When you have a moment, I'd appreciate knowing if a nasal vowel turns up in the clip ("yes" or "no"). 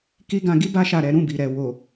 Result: yes